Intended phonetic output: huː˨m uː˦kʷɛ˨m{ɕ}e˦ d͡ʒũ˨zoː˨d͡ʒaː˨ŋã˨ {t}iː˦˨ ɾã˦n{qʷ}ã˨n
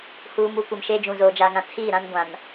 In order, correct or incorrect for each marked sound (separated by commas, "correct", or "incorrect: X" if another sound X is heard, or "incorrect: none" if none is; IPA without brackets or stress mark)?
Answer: incorrect: ʃ, incorrect: tʰ, incorrect: ɡʷ